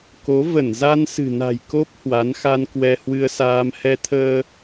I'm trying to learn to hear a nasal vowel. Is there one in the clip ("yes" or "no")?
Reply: no